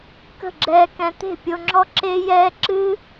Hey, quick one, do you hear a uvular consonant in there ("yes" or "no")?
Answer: no